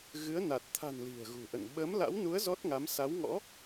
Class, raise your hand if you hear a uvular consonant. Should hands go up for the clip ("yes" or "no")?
no